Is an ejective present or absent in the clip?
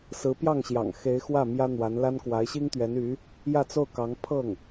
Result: absent